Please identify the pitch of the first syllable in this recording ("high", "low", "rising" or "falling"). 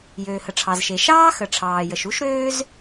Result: low